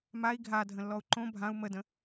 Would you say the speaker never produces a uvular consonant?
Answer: yes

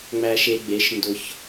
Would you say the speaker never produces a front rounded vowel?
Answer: yes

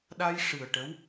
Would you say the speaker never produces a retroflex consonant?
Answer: no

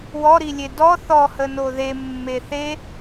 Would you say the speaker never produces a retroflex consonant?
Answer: yes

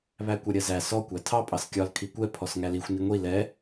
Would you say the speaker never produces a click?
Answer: yes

